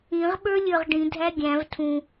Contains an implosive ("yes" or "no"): yes